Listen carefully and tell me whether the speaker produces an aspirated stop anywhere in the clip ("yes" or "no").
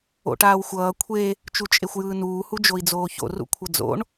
yes